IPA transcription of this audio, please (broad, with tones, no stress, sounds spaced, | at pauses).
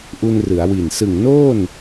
ʔ u˧ n r ɯ˩˦ a̯ w i˨˩ n s ɯ˨˩ ŋ n oː˥˩ n